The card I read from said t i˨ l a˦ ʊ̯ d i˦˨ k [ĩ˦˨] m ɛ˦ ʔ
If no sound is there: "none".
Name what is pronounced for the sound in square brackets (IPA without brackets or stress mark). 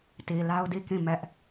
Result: ĩ˦˨